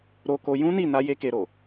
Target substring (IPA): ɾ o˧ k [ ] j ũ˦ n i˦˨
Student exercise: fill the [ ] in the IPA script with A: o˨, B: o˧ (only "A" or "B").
B